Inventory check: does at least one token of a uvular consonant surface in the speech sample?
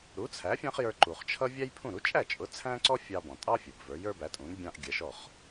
yes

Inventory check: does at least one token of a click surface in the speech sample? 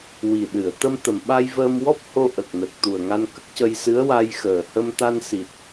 no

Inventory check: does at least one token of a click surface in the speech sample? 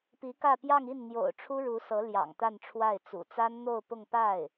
no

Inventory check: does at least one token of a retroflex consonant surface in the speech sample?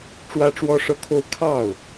yes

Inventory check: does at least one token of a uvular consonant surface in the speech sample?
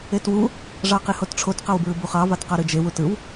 yes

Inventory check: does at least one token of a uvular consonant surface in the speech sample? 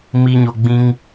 no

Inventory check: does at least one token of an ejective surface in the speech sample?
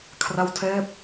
no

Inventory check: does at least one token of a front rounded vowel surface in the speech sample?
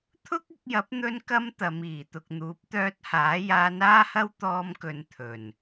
yes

